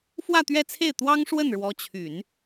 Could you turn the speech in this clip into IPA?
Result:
f w ä˥˧ t̪ ɥ ɛ˥˧ t͡sʰ e˥˩ ɪ̯ t̪ w ɑ˥ ŋ ʂ w ə˥˩ n ɻ w ɔ˧˥ t͡ɕʰ y˨˩˦ n

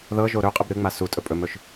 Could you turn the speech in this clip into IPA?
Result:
ð ɤ ʒ o ɾ ɵ qʼ ɨ b ɾ ɨ ŋ͡m a s u tʼ ɵ pʼ ɵ m ɵ ʃ

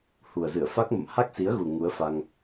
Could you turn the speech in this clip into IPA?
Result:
h u˨˩ ə̯ z ɨ˧˩ ə̯ f a˦˥ k̚ m ə̰˧˨ m h a˦˥ k̚ s i˨˦ ə̯ ɣ u˨˩ ŋ u˨˦ ə̯ f a˧ ŋ

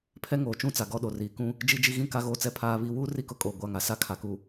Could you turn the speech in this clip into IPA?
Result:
pʰ ɛ˦ ŋ oː˨ t͡ʃ ũ˦˨ t͡s a˨ ɡ ɔ˦˨ ɗ o˨ r iː˨ k ũ˦ | d͡ʒ i˦ d͡ʒ i˦ ɣ ĩ˦ k a˦ ɣ oː˦ t͡s ɛ˦˨ pʰ aː˦ β iː˦ w uː˦ r i˦˨ k ʊ˦ kʼ oː˨ ɡʷ a˦˨ ŋ a˨ s a˦ kʰ a˨ k u˨

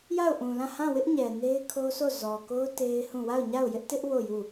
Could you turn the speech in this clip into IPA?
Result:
j a˦˨ ʊ̯ ʔ ũ˨ l ã˦˨ h ã˦˨ w ɪ˦ ʔ ɲ ɛ˨ n e˦ ɪ̯ kʰ o˦ s o˦˨ z ɔ˨ k o˦ ʊ̯ t e˦ ɪ̯ h ũ˦˨ w a˦˨ ʊ̯ ɲ a˦˨ ʊ̯ j ɪ˦ ʔ t ɪ˦ ʔ w o˦˨ j u˦˨

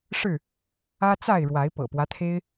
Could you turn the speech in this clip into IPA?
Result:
ʂ ɻ̩˥˨ | ä˦ t͡s a˥˨ ɪ̯ ɻ w a˨˦ ɪ̯ p ɤ̰˨˩ p w ä˦ t̪ʰ e˦ ɪ̯

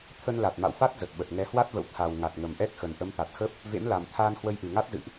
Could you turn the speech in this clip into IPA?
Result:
t̪ʰ ə˧ n l a˨˩ t̚ m a̰˧˨ w f a˦˥ t̚ z ə˨˩ t̚ ɓ ə˨˩ t̚ ŋ ɛ˨˦ h w a˦˥ t̚ v ə̰˧˨ w t̪ʰ a˨˩ w ŋ a˨˩ t̚ ŋ ə˨˩ m ʔ ɛ˦˥ k̚ x ə˨˩ n ʔ ə˨˦ m t̪ a˨˩ t̚ x ə˦˥ p̚ | v ḛ˧˥ m l a˨˩ m t̪ʰ aː˧ n h w ə˧ j ʔ ɨ˨˩ ŋ a˦˥ t̚ z ɨ̰˧˨ ʔ

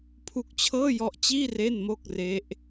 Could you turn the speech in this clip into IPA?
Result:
pʰ u˦˥ k̚ t͡ɕʰ ɤː˥˩ j ɔ˦˥ ʔ t͡ɕ iː˥˩ r e˥˩ n m o˥˩ k̚ r e˦˥ ʔ

